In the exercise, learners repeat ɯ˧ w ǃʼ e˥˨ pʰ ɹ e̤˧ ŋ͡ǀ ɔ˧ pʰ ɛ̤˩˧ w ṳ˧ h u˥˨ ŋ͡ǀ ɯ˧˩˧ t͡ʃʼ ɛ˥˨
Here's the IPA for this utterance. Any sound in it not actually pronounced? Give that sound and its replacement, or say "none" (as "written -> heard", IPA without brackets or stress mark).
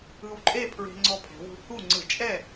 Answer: none